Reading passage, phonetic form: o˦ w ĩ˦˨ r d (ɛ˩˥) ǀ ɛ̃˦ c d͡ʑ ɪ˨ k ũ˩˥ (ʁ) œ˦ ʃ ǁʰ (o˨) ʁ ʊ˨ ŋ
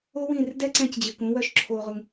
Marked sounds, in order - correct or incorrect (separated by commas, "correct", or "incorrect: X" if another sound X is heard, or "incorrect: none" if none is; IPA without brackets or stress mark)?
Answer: incorrect: ɛ˦, incorrect: w, correct